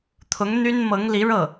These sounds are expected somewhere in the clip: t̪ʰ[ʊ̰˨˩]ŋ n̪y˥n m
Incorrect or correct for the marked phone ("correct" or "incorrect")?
incorrect